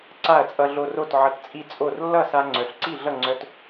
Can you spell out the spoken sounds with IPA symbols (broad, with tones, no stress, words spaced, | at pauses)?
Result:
ǀa˥˩ɐ̯t͡sʼʌ˧ɮo˧ro˥˩t ʕʌ˧tt͡sʼi˥˩t͡sʼo˥˩r lːʌ˥˩sa˧ ŋ͡ǀœ˩˥ɬǀi˥˩ɮʌ˥˩ ŋ͡ǀœ˧t